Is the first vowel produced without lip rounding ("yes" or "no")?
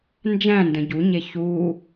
yes